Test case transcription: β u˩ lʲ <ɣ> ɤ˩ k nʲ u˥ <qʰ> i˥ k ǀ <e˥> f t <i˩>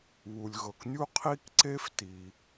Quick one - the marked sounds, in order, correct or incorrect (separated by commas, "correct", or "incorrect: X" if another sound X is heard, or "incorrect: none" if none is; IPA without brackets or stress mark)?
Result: correct, correct, correct, correct